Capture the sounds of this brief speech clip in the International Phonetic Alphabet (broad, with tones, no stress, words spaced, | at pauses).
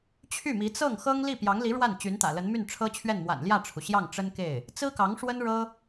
t͡ɕʰy˥˩mi˧˥ t͡sɤ˥˩ŋxɤ˥ŋ li˥˩pjɑ˧˥ŋli˧˥ ɻwa˥˩n t͡ɕy˧˥nt̪ä̰˨˩ lə˧˥nmy˥˩nʈ͡ʂʰɤ˥t͡ɕʰɥɛ˥˩n mwa̰˨˩nljä˥˩ʈ͡ʂʰu˩ ɕjɑ˥˩ŋ ʈ͡ʂə˥nke˥˩ɪ̯ | t͡sɹ̩˥kɑ˧˥ŋ ʂwə˥nɻɤ˥